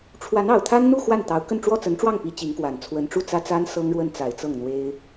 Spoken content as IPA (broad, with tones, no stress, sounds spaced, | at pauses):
ʈ͡ʂʰ w a˧˥ n ɑ˨˩ ʊ̯ t̪ʰ a˥ n n̪ u˥˧ x w a˥˩ n t̪ ɑ˧˥ ʊ̯ k ə˥˧ n ʈ͡ʂ w ɔ˥˩ t͡s ə˧˥ n ʈ͡ʂ w ɑ˥˩ ŋ p i˧˥ t͡ɕ i˧˥ ŋ k w a˨˩ n t͡sʰ w ə˧˥ n ʈ͡ʂ u˥˩ t͡s ä˥ t͡s a˥ n s ɤ˥ ŋ ɻ w ə˥˩ n t͡s a˨˩ ɪ̯ t͡s ɤ˥˩ ŋ n̪ w e˥ ɪ̯